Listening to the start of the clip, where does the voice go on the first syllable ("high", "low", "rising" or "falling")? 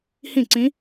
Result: falling